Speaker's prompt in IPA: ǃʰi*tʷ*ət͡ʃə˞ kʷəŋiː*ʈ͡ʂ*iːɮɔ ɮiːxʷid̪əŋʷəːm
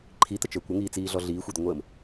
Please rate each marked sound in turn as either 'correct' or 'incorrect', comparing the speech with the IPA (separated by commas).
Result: incorrect, incorrect